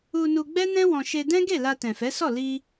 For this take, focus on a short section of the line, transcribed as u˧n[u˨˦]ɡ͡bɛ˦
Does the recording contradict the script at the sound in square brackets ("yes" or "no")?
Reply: yes